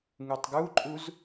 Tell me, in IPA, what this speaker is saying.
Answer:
ŋutˤɡuǃʼuz

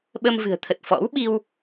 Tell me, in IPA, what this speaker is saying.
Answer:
ɓə˧mvɨ̤˨˩ə̯t̪ʰə˨˩t̚ fɔ̰˧˥wɓi˧w

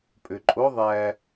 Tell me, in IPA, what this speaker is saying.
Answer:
pʼøǃʼo ðˤæ

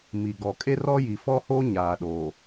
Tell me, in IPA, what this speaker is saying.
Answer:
mi˨ɡɔ˨ kʼe˦rɔ˦ji˨ fɔ˦ho˦ ɲaː˨ɗoː˨

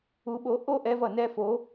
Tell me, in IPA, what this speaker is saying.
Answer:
u˧ɓo˨˥ ʔo˥˧ʔɛ˧v ʌ˩nɛ˥˧ fo˨˥

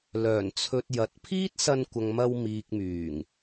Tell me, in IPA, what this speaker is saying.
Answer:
lœː˨˩nt͡sʰɵ˨t̚ jɐ˨t̚pʰiː˥t̚sɐ˧nkʷɐ˨ŋ mɐ˧wmiː˨k̚myː˨˩ŋ

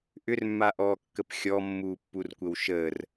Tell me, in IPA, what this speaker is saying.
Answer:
ʔʏrmːaʔɔːkːəp xʲɔmːuː pːurkʷəwʃəːr

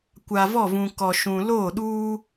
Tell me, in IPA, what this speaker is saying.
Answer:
kʷa˨vɔ˦˨vũ˨ kɔ˨ʃũ˨loː˦˨ɗuː˦

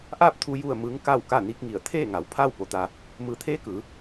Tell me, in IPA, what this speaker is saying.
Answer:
ʔaː˥˨p̚t̪ʰu˧ ju˥˨ə̯mɯː˧˥ŋ ka˥˨w ka˥˨ni˧˥k̚ŋi˧˩ə̯ t̪ʰeː˥˨ŋa˩˧w pʰaː˥˨wpo˩t̪a˩ | mɯː˩˧t̪ʰeː˧˥ kɯː˩˧

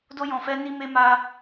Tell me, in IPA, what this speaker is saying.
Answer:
do˦jɔ̃˧fɛ˦ni˦ me˦ma˦

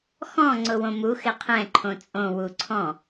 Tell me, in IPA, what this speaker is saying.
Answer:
xɔ̃ ŋ͡ǀʊwõmu xɪqʰɛ̃ ǃʰõt͡sʼõ wuǀʰɔ̃

